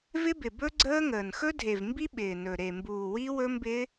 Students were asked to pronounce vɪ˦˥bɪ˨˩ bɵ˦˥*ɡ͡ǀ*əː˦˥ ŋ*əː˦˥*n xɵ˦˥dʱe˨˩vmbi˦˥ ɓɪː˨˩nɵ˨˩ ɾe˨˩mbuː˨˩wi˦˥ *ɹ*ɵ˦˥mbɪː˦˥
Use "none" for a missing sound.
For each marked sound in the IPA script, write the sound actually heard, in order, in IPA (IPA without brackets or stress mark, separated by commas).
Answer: ɡ͡ǀ, əː˨˩, w